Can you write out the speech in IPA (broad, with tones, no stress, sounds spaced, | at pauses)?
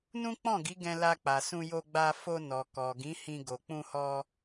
n ũ˦ k͡p ɔ̃˦˨ ɡ i˨˦ ɡ ɛ̃˧ l a˧ k͡p a˨ s ũ˧ j o˧ ɡ͡b a˧ f o˧ n ɔ˨ k ɔ˨ ɡ ĩ˨˦ h ĩ˧ ɡ o˨ k͡p ũ˧ h ɔ˧